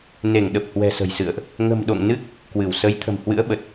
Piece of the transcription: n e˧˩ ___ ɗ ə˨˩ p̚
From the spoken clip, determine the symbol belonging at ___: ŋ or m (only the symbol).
ŋ